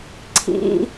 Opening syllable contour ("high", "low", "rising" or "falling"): high